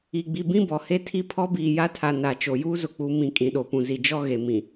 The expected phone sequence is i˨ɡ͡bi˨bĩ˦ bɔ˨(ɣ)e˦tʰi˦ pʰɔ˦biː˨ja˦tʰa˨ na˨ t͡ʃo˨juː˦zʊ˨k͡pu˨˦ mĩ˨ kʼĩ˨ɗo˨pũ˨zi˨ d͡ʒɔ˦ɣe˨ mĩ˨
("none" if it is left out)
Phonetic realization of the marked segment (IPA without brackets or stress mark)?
h